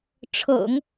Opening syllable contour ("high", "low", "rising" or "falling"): low